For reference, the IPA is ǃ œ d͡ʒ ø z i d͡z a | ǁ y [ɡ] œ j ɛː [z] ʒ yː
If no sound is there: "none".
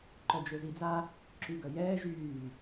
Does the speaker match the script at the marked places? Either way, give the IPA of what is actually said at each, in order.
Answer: ɡ, none

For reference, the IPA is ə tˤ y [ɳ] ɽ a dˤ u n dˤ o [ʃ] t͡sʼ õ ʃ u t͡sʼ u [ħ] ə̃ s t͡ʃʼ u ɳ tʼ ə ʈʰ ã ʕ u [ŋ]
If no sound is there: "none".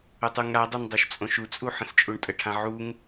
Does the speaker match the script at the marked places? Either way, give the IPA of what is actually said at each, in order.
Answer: ŋ, ʃ, ħ, ŋ

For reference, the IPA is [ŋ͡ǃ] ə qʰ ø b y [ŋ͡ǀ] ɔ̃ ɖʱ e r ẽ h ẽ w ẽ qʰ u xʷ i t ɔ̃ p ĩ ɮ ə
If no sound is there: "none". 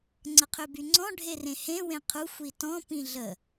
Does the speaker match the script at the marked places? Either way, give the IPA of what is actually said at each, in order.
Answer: ŋ͡ǀ, ŋ͡ǀ

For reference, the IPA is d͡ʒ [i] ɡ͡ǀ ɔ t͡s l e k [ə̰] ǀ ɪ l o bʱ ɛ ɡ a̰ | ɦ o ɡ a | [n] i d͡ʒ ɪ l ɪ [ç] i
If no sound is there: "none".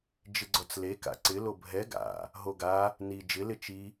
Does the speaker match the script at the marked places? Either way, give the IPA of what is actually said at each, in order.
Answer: ɪ, a̰, n, t͡ʃ

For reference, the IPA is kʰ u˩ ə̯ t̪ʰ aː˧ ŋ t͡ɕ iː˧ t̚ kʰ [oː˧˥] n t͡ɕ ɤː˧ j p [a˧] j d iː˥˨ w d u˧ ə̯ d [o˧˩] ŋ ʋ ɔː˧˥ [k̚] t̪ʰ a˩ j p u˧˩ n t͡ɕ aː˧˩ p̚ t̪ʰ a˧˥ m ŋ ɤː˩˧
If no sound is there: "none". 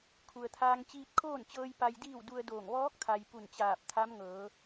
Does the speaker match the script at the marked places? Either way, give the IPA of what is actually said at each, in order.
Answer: oː˥˨, a˧, oː˧˩, k̚

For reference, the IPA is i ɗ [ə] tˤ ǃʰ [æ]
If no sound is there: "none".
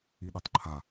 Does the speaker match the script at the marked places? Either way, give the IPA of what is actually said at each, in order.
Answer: ə, a

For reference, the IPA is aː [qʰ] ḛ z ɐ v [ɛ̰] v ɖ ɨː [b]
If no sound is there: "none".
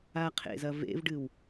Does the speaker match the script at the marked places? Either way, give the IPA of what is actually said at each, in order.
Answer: qʰ, ḛ, w

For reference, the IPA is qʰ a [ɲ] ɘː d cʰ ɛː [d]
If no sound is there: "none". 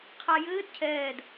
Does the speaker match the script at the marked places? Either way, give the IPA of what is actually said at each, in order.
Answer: j, d

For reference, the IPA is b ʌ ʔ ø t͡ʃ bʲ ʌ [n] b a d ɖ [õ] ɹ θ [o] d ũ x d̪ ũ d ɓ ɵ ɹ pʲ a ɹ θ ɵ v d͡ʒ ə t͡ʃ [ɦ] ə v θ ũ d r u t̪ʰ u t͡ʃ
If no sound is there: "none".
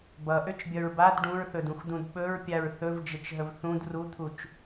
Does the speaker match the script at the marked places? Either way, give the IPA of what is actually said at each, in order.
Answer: ɹ, ũ, ɵ, ɦ

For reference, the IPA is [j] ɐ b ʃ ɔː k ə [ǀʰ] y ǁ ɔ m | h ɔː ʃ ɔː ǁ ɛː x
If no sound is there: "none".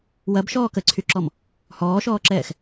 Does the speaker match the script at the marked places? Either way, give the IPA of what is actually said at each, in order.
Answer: w, ǀʰ

